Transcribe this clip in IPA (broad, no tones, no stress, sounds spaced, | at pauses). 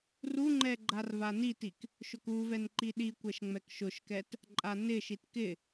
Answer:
r u ŋ͡ǃ ɛ ɡ͡ǃ a r v a n i t i k | ʃ ʊ k u v ɛ n ǃ i ɗ i kʷ ɛ ʃ ŋ͡m ɛ k ʃ ʊ ʃ k ɛ t | ǃʼ a n ɪ ʃ i t k ɪ